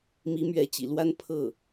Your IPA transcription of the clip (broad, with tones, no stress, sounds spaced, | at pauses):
m i˧˥ m ɥ ɛ˧˥ t͡ɕ ḭ˨˩ l w a˥ n pʰ ɤ˥˩